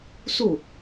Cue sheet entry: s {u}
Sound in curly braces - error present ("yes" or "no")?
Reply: no